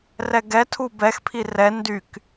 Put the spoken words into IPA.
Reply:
r ɛ ɡ ɛ tʰ u b ɛ x pʰ i r ɛ n d y k

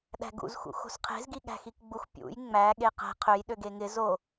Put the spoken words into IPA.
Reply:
ɗ æ̤ ɡ ṵ z x ṵ x o̤ s qʰ e̤ z ɡ i ɠ æ̤ x i k ɡ͡b u x pʲ ṵ j ŋ͡m æ ɠ e q æ̤ qʰ ø j ɗ ø ɡ e ŋ ɪ z o

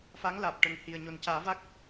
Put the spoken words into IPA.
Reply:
f a˧˥ ŋ l aː˨˩ p̚ ʈ ə˨˩ ŋ h i˨˩ ə̯ ɲ o˨˩ n c aː˨˩˦ v a˦˥ k̚

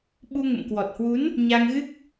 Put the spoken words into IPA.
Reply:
ɓ u˧ ŋ ə̰˧˨ m k w ɔ˨˩ t̚ h w u˨˦ n | ɲ a˧ ŋ ɣ ɨ˦˥ k̚

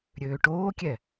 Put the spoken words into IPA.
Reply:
ɾʲ øː ʈ oː kʲ ɛ

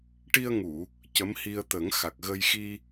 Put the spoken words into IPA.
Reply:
ʈ i˧ ə̯ ŋ u˨˩˨ | c ə˧˥ m h i˧ ə̯ t̪ ə˨˩˦ ŋ x a˨˩ k̚ ɣ ə˧ j x i˧

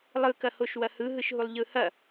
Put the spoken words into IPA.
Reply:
lˠ ɯ k ɐ h o ʃ w ɐ h ɯ ɦ ɯ ʃ ɦ u lˠ ʎ ɯ h ɐ

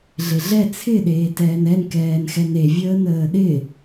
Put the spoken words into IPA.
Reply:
ɮ e ɮ ɛ t͡sʰ ɪ ɗ eː t ɛː n ɛ n k ɛː n x ɛ n e vʲ əː n əː ɗ ɪ

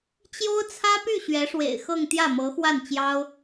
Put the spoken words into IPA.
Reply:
t͡ɕ j o˥ ʊ̯ t͡sʰ ä˥ p y˥˩ ɕ ɥ ɛ˧˥ ʂ w ḛ˨˩ ɪ̯ x ɤ˥˧ ŋ t̪ j ä˥˩ m ɤ˧˥ x w a˥˩ n t͡ɕ j ɑ˥ ʊ̯

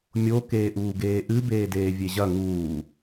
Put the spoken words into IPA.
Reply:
mʲ o k eː ʔ uː ɡ eː ʔ ɨ b eː d eː vʲ e ʑ ɐ ŋ uː

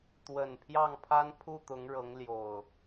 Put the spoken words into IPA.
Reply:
t̪ w ə˨˩ n pʰ j ɑ˥˨ ŋ pʰ a˦ n pʰ u˥˨ t̪ ʊ˨˦ ŋ ɻ ɤ˨˦ ŋ l j o˨˩ ʊ̯

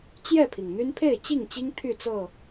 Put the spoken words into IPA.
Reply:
t͡ɕ j ɛ˥˨ pʰ i˩ ŋ n̪ y˦ n pʰ e˥˨ ɪ̯ t͡ɕ i˥˨ ŋ t͡ɕ i˦ ŋ t̪ʰ y˥˨ t͡s ɤ˥˨

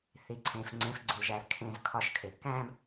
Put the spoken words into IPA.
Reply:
θ i˨ ǀʰ ẽ˨ f ŋ͡ǀ ẽ˨˦ f ɡ͡ǀ i˨ l ʒ æ˨ l kʰ ẽ˧ z kʰ ɒ˧ ʃ kʰ e˨ k æ̃˦ b

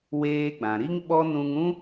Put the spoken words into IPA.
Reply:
w eː˧ ɡ͡b ã˨ ɾ i˦ ŋ ɓ ɔ˦ n ũ˧ ŋ ũ˦

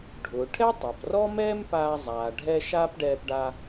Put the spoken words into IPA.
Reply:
ɖʱ ʊː˩ ʈʰ ɛ˥ tˤ a˩ p r ɔ˥ m ɛː˥ m p aː˧ zˤ aː˩ ɖʱ ɛ˧ ʃ aː˥ p ɖ ɛː˧ p ɖ a˧

